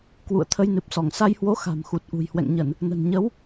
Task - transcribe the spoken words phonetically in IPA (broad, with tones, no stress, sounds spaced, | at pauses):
k w ṵ˧˨ ə̯ t̪ʰ ə˧ j n ɨ˨˩ p̚ s ɔ˧˩ ŋ s a˧ j h w o˨˦ x a̤˨˩ m x u˨˩ t̚ ʔ ṳ˨˩ j h w ɛ̰˧˨ ŋ ɲ ə˧˩˨ n | n ə̤˨˩ n ɲ ə˨˦ w